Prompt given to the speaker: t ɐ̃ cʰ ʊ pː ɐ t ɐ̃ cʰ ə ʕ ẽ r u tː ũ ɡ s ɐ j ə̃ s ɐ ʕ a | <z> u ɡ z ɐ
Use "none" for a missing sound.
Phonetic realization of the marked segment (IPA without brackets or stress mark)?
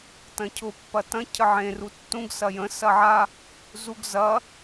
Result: z